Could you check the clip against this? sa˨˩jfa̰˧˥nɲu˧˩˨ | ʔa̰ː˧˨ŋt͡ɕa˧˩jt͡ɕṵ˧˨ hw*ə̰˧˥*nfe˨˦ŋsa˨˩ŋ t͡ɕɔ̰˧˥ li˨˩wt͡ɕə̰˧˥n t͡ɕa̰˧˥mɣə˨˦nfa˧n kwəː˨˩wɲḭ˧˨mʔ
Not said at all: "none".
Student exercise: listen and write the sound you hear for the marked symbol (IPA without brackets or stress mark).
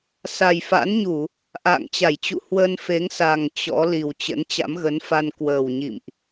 ə˧